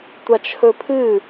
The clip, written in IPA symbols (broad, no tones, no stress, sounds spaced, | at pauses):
tʷ a t͡ʃʰ ɵ pʰ ɨ